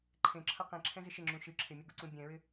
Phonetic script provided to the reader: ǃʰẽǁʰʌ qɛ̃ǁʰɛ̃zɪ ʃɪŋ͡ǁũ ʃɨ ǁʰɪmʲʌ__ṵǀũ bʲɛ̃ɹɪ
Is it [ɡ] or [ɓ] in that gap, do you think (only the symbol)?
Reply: ɡ